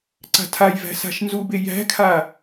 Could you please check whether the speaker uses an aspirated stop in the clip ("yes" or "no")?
yes